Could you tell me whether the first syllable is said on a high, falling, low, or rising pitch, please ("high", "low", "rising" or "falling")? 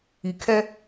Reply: low